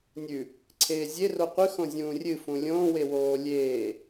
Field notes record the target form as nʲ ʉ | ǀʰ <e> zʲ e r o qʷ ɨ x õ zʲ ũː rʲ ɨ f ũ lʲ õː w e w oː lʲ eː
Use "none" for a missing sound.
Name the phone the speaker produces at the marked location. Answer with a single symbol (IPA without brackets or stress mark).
eː